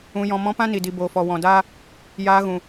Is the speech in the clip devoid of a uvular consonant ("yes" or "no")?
yes